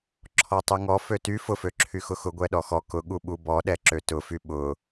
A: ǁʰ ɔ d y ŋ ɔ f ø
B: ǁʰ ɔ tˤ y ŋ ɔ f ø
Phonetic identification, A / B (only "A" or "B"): B